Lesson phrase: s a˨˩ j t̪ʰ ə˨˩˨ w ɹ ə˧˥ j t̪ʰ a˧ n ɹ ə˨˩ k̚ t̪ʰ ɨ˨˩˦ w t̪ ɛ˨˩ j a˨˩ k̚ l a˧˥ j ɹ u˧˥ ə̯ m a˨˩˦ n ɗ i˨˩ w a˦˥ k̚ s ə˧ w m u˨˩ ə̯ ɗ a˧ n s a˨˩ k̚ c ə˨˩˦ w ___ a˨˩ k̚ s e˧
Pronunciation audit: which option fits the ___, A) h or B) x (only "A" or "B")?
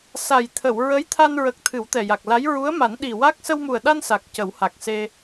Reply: A